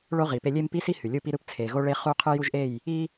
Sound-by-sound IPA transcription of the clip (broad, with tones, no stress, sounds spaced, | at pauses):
ɭ o˦ ʁ i˨ p e˦ lʲ e˦ m p i˦ s i˦ h y˨ lʲ u˦ p i˦ ɾ ɯ˦ p t͡sʰ e˨ ɣ o˦ ɭ e˦ χ u˦ qʰ ɯ˦ j u˦ ʒ ʔ e˦˨ j | i˦